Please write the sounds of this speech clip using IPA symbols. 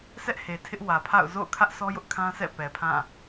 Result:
sʰ ɛ˦ ʔ h e˨ tʰ ɪ˦ ʔ w ä˨ pʰ a̰˦˨ ʊ̯ z o̰˦˨ ʊ̯ kʰ ä˦ ʔ s ɔ˦ j ʊ˦ ʔ kʰ ã˦ s ɛ̰˦˨ p ɛ˨ pʰ ã˦˨

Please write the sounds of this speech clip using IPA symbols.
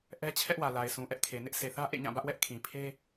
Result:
ʔ ɛ˦ t͡ɕʰ ɛ˦ ʔ w ä˨ l a˨ ɪ̯ s ũ˨ ʔ ɛ˦ ʔ kʰ e˨ n ɪ˦ ʔ s e˨ θ ä˦ ʔ ḛ˦˨ ɲ ã˦˨ b ä˦ ʔ w ɛ˦ ʔ kʰ ĩ˨ pʰ e˦

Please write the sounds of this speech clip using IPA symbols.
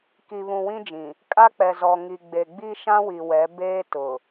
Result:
k i˨ β ũ˨ w ĩ˦ d͡ʒ ĩ˨ | kʼ a˦ k͡p ɛ˨ z ɔ˨ ŋ i˨ ɡ͡b e˨ ɡ͡b i˦ ʃ ã˦ w i˨ w ɛ˨˦ b eː˦ t ʊ˨

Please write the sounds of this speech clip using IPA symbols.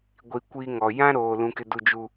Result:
ɡʷ i˨ kʷ iː˦ ŋ ɔ˨ j ã˦ ɾ oː˨ l ũ˦ k ɪ˦ d u˦˨ d͡ʒ u˨

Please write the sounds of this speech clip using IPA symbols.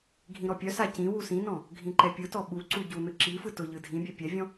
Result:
ɡʱ ĩ ɾ ɔ pʲ œ s a c ĩ w u s ĩ n ɔ̃ | ɡʱ ĩ ǃ ɛ pʲ ɯ t ɔ ɓ u ǀ u ɟ u n ɯ ǁ i f ɯ t ʊ ʎ ɯ dʱ ĩ bʲ ɛ pʲ ɛ vʲ ɔ̃

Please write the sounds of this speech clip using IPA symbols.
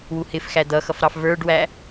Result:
w u h ɪ f x æ d̪ ʌ x ʌ f ɾ ɑ f v ə˞ ɖ w æ

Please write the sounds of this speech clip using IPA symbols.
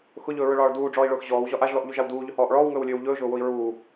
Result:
x ʊ ʎ ɵː ɹ ɵ ɭ ɒː ɭ d uː ɖ͡ʐ ɔː i̯ ɭ ʊː x ʑ ɔː w ʑ ɒ ʔ a ʒ l ɔ ʔ ʎ u ʒ a w d uː ʎ ɵ h ɔː ʔ ɭ ɔː w ŋ ɵː w lʲ ɵː w ʎ ɵː ʒ ʊː w ʊ i̯ ɹ uː

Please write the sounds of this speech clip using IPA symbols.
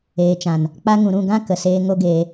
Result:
eː˨ t͡ʃ ã˨ n | k͡p a˧ ŋ ũ˨ ɾ ũ˦˨ ɡ ã˦ k ə˨ s eː˧ ŋ o˦ ɡ eː˧

